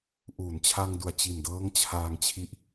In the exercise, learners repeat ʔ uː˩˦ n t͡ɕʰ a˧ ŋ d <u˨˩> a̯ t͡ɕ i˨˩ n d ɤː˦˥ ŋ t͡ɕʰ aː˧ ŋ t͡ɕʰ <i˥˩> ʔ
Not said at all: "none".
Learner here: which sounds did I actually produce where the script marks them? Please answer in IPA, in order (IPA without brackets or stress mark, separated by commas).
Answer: u˨˩, i˦˥